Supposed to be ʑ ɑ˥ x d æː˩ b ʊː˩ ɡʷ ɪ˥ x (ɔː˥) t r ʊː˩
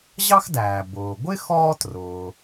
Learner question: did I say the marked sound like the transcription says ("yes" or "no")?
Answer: yes